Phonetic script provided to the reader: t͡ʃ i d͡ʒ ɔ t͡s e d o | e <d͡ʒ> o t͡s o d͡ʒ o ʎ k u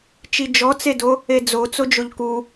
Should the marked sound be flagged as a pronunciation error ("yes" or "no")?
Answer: yes